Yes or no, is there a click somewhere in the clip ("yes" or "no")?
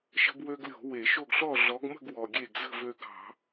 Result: no